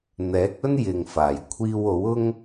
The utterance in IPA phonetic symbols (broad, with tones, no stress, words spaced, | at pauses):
n̪ɛː˨˥k̚ɵ˥njɪ˨ŋfaː˨˩j kʷʰiː˧wo˨˥wʊ˥ŋ